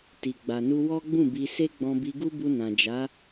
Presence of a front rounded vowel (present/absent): absent